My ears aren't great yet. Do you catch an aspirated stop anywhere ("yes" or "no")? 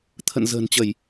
yes